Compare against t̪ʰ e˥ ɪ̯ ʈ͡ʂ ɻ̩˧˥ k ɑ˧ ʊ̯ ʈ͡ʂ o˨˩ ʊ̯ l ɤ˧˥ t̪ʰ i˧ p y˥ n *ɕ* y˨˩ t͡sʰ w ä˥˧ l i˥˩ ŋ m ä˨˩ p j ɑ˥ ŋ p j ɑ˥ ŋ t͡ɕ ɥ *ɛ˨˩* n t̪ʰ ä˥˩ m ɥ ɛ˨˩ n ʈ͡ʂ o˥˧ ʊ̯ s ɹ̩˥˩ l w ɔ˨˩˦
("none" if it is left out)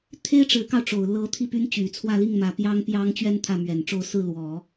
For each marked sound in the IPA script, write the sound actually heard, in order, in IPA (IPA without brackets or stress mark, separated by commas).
t͡ɕ, ɛ˥˧